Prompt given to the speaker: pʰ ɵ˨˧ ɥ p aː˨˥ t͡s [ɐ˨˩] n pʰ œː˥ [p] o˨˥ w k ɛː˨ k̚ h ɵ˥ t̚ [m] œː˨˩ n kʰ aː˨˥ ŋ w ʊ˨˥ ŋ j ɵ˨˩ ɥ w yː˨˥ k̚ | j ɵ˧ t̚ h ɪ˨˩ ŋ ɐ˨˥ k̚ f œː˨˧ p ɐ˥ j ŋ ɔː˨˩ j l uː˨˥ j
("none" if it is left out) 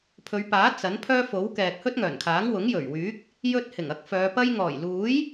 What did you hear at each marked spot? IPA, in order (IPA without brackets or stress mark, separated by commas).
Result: ɐ˨˥, f, ŋ